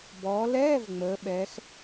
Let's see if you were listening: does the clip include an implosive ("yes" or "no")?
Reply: yes